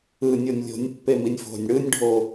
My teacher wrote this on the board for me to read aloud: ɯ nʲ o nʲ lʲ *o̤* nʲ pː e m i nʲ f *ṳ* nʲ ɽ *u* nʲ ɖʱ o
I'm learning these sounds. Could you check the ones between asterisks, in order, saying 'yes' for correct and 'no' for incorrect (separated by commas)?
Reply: yes, no, no